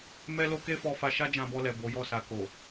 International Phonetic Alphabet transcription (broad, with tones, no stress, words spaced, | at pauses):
mɛ˦lo˦ ke˦fɔ˧fa˧ ʃa˦d͡ʒã˧bɔ˧lɛ˨ bo˨˦jɔ˦˨ sa˨ko˨